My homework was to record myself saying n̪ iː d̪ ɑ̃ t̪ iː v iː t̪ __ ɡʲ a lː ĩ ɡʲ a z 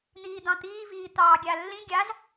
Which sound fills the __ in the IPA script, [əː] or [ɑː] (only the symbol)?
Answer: ɑː